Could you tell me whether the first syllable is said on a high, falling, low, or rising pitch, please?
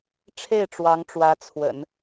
falling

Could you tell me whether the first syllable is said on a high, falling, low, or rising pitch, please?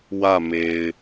falling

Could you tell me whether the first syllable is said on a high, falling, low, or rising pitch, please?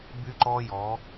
high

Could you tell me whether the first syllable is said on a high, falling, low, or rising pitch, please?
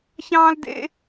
high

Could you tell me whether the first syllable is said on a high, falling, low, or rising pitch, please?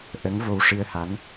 rising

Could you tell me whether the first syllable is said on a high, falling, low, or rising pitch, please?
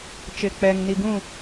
low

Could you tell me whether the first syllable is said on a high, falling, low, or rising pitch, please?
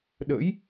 rising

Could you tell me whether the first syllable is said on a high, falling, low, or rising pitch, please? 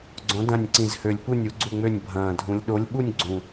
rising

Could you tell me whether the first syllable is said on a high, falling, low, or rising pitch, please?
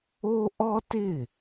high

